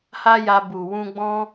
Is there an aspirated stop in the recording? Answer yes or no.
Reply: no